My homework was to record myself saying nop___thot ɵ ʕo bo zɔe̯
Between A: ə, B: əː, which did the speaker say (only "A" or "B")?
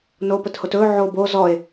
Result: A